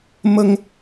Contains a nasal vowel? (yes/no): no